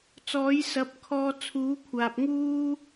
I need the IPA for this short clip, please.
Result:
t͡s ɔː˨˥ j s ɐ˨˥ p̚ kʰ ɔː˧ t͡sʰ uː˨˥ kʷʰ aː˨ p̚ ŋ uː˥

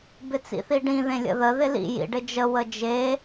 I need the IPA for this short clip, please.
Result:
b ɪ t͡s ḭ θ i ɖ ĩ ð ẽ lʲ ə̰ ð ə ð ɪ l ḭ j ḭ ɖ ɪ d͡ʒ ə w ə d͡ʒ e

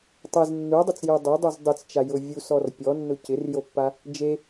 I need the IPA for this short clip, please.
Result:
tˤ e z nː u dˤ u t͡s j u dˤ o dˤ u z dˤ ɪ t͡s t͡ʃ a j ʊ vʲ u s ɔ r pʲ ɔ nː ʊ c ɪ r j o pː a | d͡ʒ e

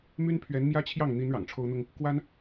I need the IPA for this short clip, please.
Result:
m y˥ n pʰ ɥ ɛ˧˥ n m j ä˥ t͡ɕʰ j ɑ˥˩ ŋ n̪ i˧˥ n ɻ ɑ̰˨˩ ŋ ʈ͡ʂʰ o˥ ʊ̯ n̪ ʊ˥ ŋ | k w a˥ n

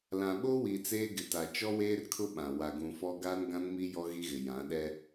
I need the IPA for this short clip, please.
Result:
l ã˨ ɓ o˦ w i˨ t͡s eː˦ ɡ ɪ˨ t a˨ t͡ʃ ɔ˦ w eː˦ r kʰ ʊ˦ ɓ ã˨ w a˨ ɡ ũ˨ f ɔ˦ ɡ aː˦ n ɡ ã˦ n m i˦ j ɔ˦ ɣ i˦ ɣ ɪ˨ j ã˨˦ ɗ ɛ˦

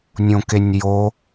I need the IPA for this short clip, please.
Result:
nʲ õ k e nʲ j o

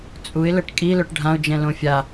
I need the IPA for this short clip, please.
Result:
t͡sʼ u ɪ̯ l ə ʈ kʼ i l œ ʈ ɖʱ ã ʊ̯ d͡ʒ ɛ̃ l õ fʲ a

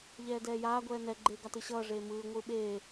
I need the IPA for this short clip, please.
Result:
ʎ ɛː d ɛː j aː ɡʷ ɛː n ɛ ɡ͡ǃ eː ɡ a t ɯ ɕ ʌː ʐ eː m ɯː ŋʷ ɯː ɓ eː

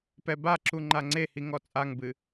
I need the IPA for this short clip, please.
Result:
p ɛ b a ǁ u ŋ͡ǃ a ŋ͡ǀ e h i ŋ ɔ t͡sʼ a ŋ b ɨ

